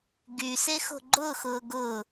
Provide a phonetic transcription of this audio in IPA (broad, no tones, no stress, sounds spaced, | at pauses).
ɡ y s e x o̤ ɡ͡ǃ ʊː x ʊː ɡ ʊ